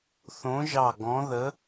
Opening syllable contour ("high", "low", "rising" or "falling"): rising